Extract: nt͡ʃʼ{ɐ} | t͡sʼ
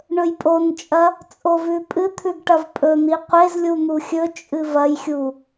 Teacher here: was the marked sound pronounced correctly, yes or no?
yes